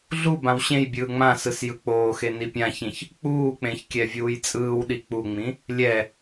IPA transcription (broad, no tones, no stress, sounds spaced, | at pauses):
ɮ u b ã w ɕ ẽ j bʲ ɯː ŋ͡m ã s ɯ s j ɯ k͡p oː x e n i pʲ ã ç ĩ ç | k͡p uː k͡p ẽ ç kʲ ɛ vʲ uː j t͡sʼ ɯː w ɗ i k͡p u ŋ͡m ĩ | lʲ ɛ